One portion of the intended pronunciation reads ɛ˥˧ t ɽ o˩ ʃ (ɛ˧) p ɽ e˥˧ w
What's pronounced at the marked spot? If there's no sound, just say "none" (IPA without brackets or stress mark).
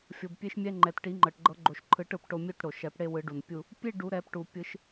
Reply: ɛ˨˩˦